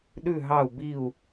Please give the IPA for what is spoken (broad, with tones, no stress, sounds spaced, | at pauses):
ɗ ʉ˦˨ ɦ ɑ˦˨ u̯ b i˦˨ u̯